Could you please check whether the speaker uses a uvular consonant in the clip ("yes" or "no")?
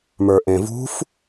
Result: no